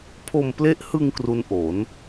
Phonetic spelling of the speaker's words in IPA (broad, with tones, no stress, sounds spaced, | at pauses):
pʰ o˧ m p l e˦˥ ʔ h ɯ˧ ŋ k r u˦˥ n ʔ o˩˦ n